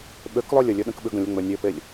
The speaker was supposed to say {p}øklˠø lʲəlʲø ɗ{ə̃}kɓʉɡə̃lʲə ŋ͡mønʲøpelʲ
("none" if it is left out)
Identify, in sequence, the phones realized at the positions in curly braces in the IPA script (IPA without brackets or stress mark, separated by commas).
ɓ, ə̃